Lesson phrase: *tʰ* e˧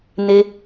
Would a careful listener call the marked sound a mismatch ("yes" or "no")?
yes